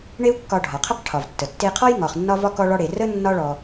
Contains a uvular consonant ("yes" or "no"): yes